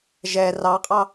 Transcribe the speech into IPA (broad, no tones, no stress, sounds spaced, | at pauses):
ʒ ɛ r ɑ qʼ ɑ